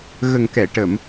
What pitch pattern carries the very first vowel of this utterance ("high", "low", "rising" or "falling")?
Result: low